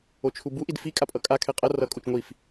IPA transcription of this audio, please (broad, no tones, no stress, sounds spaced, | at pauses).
o t͡ʃʰ u b u ʔ i d f i kʼ a pʼ ʌ kʼ a kʰ ɛ qʼ ʌ r ʌ kʼ u t͡ʃ ŋʷ i f